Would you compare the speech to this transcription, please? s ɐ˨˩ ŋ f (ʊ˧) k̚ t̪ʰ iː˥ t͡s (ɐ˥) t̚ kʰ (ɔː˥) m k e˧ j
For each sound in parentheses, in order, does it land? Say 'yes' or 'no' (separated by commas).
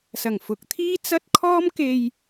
no, yes, yes